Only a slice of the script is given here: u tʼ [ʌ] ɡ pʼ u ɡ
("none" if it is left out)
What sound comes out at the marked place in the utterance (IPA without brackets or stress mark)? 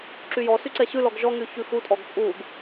ɔ